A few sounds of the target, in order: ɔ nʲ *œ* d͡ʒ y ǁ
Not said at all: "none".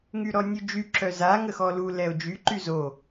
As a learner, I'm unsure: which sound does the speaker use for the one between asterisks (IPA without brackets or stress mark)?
ø